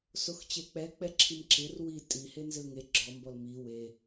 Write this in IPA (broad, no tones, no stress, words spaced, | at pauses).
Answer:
soxt͡ɕek͡pɛ k͡pɛǁʰimǁɪr wi tʼi henzɪlŋe ɡ͡ǁɔmbɔl mi we